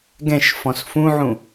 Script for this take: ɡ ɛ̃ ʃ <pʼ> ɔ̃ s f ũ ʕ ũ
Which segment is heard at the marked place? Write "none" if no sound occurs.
f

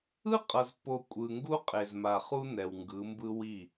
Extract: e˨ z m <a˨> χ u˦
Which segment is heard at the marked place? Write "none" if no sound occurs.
a˨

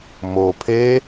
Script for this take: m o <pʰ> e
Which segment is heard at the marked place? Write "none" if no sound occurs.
pʰ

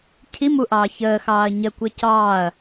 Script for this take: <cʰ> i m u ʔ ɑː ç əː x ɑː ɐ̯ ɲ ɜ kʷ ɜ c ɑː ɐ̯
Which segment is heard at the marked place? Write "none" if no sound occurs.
cʰ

